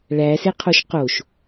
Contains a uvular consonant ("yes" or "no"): yes